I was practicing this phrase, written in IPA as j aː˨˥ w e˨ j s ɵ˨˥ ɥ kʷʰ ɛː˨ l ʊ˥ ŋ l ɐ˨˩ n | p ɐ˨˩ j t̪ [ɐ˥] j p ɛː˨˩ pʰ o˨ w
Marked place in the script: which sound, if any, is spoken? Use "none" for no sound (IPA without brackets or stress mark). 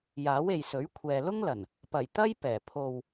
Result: ɐ˥